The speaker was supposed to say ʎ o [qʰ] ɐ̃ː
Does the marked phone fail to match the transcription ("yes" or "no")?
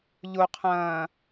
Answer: no